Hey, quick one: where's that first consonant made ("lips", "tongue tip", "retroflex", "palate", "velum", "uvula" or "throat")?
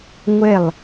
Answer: velum